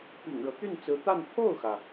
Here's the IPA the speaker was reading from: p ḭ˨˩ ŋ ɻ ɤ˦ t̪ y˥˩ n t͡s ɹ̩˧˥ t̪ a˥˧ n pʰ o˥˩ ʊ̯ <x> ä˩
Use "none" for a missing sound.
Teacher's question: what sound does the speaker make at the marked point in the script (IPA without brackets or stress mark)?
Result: x